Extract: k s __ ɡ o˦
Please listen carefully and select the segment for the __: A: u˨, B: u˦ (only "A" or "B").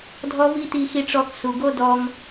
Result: A